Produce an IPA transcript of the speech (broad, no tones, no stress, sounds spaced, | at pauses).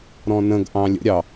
ɾ ɔ̃ n ə̃ ɡ ʔ ɑ̃ lʲ ə̰ ɾʲ ɑ